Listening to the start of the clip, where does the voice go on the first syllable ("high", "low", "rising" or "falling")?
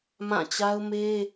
falling